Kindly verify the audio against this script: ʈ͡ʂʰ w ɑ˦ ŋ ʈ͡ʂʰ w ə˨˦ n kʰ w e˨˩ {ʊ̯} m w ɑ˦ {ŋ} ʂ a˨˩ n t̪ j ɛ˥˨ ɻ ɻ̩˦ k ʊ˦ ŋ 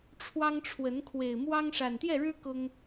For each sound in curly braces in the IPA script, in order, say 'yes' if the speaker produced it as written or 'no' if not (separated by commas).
no, yes